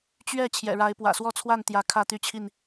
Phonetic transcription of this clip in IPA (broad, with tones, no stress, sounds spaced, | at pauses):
t͡ɕ ɥ ɛ˥˨ t͡ɕʰ j ɛ̰˨˩ ɻ a˨˦ ɪ̯ p w ä̰˨˩ s w ɔ˥˨ t͡sʰ w a˥˨ n t̪ j ä˨˦ kʰ ä˥˨ t̪ y˥˨ t͡ɕʰ i˥˨ n